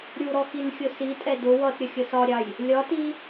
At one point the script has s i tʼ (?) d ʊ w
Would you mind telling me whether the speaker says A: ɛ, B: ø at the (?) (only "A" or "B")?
A